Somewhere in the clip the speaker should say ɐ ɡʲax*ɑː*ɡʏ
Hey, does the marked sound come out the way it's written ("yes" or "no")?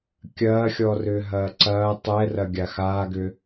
no